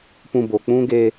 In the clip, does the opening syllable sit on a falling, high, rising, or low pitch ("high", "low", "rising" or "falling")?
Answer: low